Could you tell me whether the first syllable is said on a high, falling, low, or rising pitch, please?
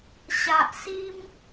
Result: low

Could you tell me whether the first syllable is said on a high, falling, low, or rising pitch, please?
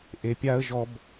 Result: low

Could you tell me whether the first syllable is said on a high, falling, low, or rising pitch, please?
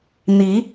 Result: rising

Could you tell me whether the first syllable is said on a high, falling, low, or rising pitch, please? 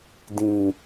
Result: low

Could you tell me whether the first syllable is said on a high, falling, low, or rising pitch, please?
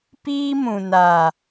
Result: high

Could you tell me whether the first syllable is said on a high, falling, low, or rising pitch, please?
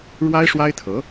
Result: high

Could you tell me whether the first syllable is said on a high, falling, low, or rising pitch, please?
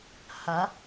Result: rising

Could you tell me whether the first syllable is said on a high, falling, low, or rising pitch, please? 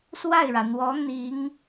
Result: falling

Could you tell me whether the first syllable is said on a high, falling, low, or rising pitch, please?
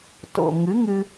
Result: low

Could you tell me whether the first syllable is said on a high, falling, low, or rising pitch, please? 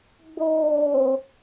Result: low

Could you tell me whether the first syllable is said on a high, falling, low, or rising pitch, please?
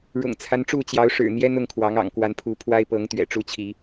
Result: low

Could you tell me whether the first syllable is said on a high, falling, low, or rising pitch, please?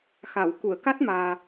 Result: low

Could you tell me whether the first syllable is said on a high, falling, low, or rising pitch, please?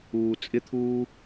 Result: low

